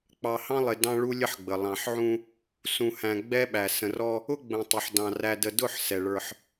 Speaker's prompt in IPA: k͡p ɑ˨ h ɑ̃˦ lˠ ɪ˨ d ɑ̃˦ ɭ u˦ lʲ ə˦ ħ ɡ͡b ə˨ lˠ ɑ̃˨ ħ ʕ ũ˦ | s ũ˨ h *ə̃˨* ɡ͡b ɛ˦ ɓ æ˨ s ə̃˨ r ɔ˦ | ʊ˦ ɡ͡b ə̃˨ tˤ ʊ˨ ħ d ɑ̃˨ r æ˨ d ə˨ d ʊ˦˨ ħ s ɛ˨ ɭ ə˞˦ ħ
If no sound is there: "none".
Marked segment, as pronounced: æ̃˨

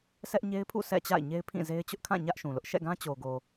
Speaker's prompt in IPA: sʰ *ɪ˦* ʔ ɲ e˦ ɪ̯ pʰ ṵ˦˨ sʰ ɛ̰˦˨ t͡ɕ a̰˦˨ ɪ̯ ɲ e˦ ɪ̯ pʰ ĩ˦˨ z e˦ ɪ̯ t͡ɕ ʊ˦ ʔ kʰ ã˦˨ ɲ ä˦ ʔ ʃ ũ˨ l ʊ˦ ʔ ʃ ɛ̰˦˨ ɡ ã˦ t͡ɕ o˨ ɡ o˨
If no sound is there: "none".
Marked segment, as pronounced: ɛ˦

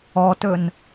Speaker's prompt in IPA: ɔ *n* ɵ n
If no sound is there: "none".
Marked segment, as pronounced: t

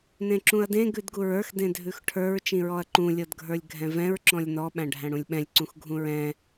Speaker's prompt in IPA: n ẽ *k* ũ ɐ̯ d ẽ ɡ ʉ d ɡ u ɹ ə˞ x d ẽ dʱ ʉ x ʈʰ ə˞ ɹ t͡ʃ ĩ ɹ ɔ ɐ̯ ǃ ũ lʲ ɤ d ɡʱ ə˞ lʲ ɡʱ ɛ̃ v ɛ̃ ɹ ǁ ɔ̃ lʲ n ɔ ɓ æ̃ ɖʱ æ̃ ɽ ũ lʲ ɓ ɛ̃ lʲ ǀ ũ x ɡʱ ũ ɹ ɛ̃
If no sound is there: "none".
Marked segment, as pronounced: ǁ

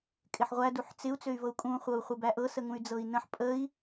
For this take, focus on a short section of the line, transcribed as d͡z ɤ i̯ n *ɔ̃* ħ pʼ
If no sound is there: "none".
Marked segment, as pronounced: ə̃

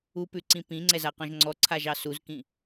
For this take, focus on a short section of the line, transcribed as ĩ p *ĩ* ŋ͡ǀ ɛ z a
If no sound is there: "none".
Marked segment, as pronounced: ĩ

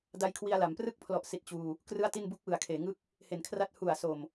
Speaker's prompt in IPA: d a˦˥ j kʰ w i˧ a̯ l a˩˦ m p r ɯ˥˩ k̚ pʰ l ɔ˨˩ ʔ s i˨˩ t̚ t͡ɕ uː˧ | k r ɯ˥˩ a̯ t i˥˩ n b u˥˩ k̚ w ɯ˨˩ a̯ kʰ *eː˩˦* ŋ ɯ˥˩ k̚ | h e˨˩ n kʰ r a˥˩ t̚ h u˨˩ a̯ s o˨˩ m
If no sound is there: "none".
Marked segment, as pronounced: eː˩˦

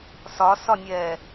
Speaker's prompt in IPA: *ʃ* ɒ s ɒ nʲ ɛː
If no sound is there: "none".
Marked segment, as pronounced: s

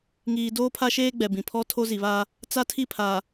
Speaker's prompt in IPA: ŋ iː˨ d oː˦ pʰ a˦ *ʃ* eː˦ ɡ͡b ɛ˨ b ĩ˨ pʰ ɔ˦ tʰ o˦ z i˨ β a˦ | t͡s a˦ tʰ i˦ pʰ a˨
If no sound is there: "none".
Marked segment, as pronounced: ʃ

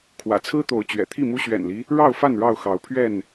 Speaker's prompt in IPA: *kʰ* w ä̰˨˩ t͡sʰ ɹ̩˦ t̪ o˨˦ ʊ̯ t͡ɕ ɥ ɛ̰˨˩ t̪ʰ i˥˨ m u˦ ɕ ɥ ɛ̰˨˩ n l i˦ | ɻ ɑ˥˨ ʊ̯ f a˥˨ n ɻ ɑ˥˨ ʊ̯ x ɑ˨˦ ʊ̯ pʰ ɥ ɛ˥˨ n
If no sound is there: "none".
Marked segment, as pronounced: kʰ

